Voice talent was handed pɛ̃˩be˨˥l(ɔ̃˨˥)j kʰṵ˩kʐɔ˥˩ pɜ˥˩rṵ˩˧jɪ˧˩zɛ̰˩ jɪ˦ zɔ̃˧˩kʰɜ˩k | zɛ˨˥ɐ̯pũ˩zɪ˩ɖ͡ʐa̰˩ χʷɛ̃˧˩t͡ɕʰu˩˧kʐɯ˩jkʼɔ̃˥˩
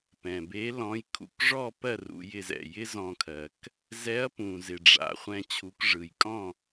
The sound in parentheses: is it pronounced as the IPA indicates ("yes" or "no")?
yes